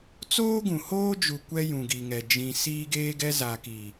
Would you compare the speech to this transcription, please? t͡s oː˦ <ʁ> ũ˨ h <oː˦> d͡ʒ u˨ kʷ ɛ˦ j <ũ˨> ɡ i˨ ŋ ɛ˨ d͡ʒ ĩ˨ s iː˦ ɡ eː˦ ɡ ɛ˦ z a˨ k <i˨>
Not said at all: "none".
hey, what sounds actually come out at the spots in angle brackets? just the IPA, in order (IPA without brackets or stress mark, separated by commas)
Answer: ɡ, oː˦, ũ˨, i˨